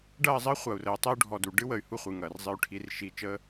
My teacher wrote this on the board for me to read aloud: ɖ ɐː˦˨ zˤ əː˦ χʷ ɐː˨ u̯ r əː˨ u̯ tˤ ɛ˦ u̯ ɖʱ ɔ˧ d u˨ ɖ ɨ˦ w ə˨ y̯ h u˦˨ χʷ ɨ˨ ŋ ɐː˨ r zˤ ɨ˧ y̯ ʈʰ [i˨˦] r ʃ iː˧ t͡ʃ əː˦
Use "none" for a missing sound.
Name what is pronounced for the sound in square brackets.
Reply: i˨˦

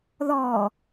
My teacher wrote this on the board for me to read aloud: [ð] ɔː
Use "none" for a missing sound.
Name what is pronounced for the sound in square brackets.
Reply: ð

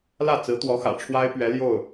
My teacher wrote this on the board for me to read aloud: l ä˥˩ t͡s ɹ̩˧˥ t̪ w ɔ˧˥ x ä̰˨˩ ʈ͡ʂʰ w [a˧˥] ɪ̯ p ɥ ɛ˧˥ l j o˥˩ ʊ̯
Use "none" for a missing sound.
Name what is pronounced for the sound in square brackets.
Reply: a˥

